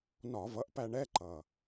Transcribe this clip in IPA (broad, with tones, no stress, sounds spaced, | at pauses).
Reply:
n ɒ˧˩˧ v ʌ˩˥ ʔ p æ˧ ɳ ɛ˧˥˧ ǃ ʌ˨˩